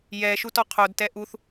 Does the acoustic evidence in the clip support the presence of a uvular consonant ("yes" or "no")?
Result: yes